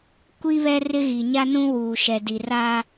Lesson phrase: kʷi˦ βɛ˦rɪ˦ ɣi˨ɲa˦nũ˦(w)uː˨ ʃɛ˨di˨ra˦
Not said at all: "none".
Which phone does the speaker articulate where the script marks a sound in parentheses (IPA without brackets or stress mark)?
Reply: w